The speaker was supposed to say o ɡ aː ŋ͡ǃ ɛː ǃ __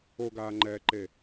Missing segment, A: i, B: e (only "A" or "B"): B